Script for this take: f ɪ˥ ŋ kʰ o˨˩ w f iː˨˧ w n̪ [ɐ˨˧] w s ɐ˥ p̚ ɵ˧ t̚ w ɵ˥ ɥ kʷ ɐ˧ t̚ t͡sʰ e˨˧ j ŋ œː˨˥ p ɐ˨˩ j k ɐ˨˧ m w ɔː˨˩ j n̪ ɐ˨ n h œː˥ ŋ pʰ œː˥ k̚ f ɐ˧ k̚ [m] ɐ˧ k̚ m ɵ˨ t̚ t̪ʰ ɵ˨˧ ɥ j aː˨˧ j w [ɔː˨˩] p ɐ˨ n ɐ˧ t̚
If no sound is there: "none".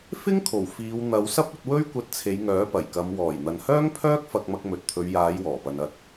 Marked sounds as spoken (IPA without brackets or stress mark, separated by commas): ɐ˨˧, m, ɔː˨˩